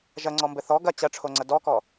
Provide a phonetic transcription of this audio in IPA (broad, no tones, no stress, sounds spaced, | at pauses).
ʒ ɐ ŋ͡ǀ ɔ m b ɘ θ ɔ ɡ ɐ t͡ɕ ɐ ʈ͡ʂʰ o ŋ͡ǀ ɐ d ɔ k ɔ